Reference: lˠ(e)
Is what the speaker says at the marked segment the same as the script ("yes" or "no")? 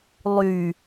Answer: no